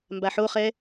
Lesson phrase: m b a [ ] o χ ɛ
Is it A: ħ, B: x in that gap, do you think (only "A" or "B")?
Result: A